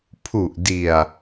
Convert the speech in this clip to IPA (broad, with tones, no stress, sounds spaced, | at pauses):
pʰ u˨˩ ʔ d i˨˩ a̯